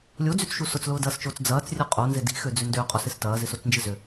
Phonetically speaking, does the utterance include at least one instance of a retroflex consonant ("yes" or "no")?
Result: no